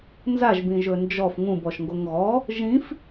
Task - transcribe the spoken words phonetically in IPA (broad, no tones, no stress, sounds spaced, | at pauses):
n z a ʒ b ĩ ʒ ɵ n d͡ʒ ɔ f ŋ ũ b ɔ ʃ ŋ ɡ o ŋ ɣ ɔ | ʒ ĩ f